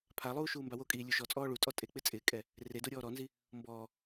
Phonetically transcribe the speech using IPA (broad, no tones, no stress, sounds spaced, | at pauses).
pʰ a lˠ uː ʃ uː m b a w o kʼ iː lʲ u ʃ ɔ t͡sʼ ɔː ɭ u tʼ ɔ tʼ e k͡p ɪ t͡sʼ ɪː kʼ ɛ | r e d o ɾʲ ɔː ɾ ɔ n z i | m b ɔː